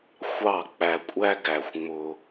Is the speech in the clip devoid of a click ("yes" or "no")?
yes